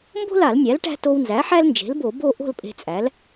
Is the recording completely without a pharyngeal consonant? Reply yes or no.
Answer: no